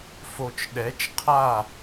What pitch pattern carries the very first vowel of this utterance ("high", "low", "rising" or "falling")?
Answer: low